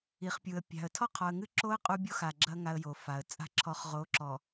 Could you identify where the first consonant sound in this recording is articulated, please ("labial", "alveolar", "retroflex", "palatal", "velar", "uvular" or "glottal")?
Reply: uvular